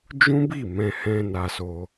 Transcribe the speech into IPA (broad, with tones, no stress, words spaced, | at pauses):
d͡ʒũ˦bi˦˨ mɛ̃˧hɛ̃˧ na˧so˧